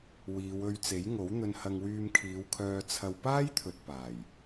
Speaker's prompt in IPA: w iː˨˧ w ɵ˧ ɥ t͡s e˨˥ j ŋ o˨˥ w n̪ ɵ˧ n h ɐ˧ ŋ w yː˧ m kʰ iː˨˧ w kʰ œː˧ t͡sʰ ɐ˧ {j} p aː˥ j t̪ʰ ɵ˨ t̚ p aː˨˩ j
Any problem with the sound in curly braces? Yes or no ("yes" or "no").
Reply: yes